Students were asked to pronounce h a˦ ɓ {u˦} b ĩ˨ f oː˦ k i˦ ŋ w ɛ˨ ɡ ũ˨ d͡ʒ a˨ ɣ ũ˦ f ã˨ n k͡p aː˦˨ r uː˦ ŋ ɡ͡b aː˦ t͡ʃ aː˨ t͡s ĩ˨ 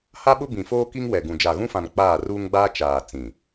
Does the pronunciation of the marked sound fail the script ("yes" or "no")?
yes